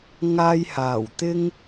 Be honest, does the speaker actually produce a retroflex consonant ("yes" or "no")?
no